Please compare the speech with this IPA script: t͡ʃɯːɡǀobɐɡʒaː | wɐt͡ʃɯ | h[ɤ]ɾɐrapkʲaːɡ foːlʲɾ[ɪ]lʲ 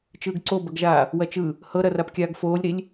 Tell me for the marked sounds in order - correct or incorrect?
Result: correct, incorrect: i

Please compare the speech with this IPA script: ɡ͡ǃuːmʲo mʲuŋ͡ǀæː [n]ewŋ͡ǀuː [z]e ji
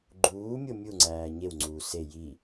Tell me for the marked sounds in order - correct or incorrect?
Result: incorrect: ɲ, incorrect: s

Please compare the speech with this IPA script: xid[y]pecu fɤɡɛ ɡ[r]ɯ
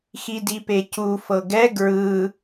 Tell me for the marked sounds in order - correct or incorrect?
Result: incorrect: i, incorrect: ɹ

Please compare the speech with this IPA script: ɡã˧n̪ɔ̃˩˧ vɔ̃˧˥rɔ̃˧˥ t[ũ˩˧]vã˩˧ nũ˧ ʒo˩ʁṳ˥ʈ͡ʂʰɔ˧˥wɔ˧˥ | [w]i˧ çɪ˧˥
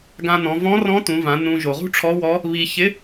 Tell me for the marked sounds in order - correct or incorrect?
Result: correct, incorrect: β

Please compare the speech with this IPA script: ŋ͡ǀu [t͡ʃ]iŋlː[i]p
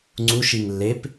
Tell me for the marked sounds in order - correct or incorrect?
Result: incorrect: ʃ, incorrect: e

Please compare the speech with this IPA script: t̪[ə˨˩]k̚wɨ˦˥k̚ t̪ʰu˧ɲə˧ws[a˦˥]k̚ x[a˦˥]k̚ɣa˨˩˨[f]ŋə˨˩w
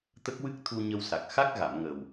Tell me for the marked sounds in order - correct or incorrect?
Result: incorrect: ə˦˥, incorrect: a˨˩, correct, incorrect: m

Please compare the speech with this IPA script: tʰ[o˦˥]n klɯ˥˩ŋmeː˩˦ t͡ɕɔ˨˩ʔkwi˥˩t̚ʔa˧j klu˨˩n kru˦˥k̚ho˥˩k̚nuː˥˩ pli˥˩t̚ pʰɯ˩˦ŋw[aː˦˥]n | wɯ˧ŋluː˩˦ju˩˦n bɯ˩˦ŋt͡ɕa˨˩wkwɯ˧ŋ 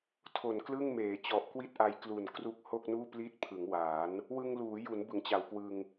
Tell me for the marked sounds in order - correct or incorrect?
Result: incorrect: o˨˩, incorrect: aː˩˦

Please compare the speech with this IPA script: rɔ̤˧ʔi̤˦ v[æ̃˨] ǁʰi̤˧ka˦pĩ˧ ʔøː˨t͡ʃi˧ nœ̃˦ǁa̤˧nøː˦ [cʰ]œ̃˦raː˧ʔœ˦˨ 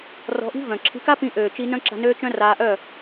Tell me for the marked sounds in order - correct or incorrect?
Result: incorrect: œ̃˨, incorrect: t͡ʃ

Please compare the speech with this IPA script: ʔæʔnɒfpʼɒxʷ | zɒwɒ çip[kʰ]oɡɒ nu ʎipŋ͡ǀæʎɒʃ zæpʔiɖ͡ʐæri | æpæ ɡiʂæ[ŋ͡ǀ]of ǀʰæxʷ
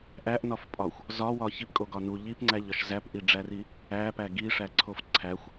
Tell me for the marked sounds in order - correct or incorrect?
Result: incorrect: kʼ, incorrect: ǀʰ

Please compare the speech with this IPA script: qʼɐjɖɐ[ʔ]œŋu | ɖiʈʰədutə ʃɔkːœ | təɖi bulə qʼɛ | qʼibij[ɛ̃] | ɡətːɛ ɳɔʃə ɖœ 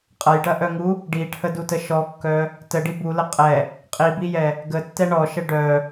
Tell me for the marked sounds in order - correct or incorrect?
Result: correct, incorrect: ɛ

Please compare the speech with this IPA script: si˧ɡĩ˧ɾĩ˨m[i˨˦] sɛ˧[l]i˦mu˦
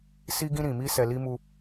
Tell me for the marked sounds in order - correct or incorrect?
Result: incorrect: i˧, correct

